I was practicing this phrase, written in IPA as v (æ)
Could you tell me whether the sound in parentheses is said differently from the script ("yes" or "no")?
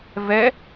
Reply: yes